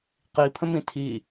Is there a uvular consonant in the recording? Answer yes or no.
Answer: yes